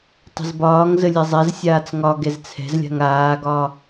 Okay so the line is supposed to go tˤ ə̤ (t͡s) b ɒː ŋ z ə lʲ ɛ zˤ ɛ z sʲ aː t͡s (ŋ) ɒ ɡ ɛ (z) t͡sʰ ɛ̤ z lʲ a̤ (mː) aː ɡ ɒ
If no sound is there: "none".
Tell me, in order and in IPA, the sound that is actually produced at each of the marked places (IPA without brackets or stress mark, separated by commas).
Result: z, ŋ, z, ŋ